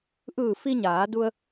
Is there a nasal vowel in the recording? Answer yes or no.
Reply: no